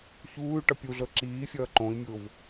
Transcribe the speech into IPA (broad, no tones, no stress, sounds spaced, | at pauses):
ç uː y̯ ʈ ʌ pʲ u ɮ ɤ ǁ iː fʲ ʌː ǃ õ i̯ mʲ ʊː v